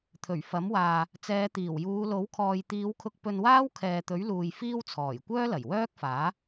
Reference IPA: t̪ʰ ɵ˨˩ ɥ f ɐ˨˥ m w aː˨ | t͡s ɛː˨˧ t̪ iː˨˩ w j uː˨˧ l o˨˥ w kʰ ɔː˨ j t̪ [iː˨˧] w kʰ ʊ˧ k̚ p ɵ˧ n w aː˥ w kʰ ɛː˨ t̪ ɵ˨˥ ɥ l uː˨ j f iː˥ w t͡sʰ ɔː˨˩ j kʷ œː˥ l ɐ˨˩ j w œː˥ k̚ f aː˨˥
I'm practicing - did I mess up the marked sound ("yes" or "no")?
no